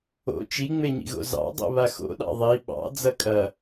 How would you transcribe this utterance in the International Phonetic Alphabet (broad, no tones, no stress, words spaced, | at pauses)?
o̰ t͡ʃiŋ͡meɲḭɣo̰ zɑ̰dˤo̰ βaxo̰ɗɑ̰ ðˤi ɓɑ̰ d͡zɐkʼɐ